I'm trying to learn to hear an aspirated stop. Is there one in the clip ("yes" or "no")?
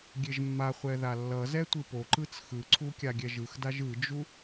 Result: yes